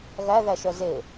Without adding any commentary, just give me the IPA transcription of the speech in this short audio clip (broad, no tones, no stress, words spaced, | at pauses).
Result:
ɣæðæʃœ ze